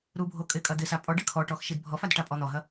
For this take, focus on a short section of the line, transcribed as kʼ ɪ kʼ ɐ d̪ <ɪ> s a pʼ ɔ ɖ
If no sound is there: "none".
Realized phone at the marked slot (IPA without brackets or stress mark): ɪ